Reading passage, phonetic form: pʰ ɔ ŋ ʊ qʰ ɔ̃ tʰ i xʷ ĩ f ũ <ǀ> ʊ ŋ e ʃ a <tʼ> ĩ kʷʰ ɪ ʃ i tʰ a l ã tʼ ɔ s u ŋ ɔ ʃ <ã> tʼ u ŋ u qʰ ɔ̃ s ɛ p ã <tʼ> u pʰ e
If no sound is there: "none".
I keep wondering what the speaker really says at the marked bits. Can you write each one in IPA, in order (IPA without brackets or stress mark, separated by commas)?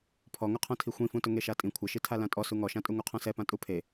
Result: t, tʼ, ã, tʼ